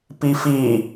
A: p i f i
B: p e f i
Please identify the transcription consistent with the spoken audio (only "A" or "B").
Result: A